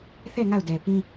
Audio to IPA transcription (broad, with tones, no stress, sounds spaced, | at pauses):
θ ɛ˦˨ ŋ a˦˨ ʊ̯ d ɛ˨ p ĩ˦